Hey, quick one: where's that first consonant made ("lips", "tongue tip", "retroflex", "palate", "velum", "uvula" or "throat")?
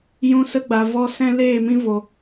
palate